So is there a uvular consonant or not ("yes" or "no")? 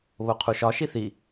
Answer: yes